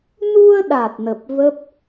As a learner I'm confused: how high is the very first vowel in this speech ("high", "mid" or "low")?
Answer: high